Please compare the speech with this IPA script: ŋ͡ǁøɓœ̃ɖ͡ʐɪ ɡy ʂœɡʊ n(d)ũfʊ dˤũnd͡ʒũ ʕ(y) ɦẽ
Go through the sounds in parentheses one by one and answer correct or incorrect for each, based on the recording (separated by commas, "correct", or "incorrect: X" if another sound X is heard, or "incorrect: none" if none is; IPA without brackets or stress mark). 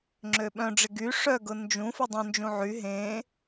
incorrect: d͡ʒ, correct